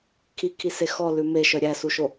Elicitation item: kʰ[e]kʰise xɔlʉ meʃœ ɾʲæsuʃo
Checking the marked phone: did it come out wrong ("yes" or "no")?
yes